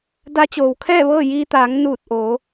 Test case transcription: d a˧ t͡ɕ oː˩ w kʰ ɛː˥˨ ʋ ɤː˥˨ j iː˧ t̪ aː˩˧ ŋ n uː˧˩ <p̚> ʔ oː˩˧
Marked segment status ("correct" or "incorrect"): incorrect